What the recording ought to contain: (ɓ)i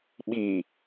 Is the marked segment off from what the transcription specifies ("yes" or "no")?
no